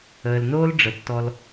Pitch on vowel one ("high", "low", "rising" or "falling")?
low